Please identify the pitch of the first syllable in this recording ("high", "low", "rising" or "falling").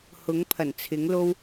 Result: rising